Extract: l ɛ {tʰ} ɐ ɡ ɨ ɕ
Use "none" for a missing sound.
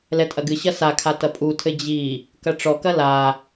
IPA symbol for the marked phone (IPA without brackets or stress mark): tʼ